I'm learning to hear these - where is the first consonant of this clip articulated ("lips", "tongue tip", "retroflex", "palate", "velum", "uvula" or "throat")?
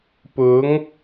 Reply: lips